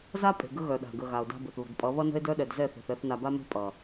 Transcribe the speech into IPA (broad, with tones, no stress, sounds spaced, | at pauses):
z a˦ pʼ e̤˨ ɡ ə˦ ɣ œ˨ ɗ a̤˨ ɡ ə˨ ɣ a˨ o̯ d a̤˦ b ə˨ θ β ə̤˨ d pʼ ʌ˨˦ β ʌ˦ n ə̤˦ e̯ d œ˦ ɗ ɛ˨ d z ɛ˦˨ θ e̤˨ θ ɛ˦˨ θ n a˨ b a˦ m e̤˦ pʼ ʌ˨